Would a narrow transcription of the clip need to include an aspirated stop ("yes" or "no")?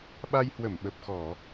no